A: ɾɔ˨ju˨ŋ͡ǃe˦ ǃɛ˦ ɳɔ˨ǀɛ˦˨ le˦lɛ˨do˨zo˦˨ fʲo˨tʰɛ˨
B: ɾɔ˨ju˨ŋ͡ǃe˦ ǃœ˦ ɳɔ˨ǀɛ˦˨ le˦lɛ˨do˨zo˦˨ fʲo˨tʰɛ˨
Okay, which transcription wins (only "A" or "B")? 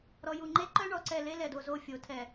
B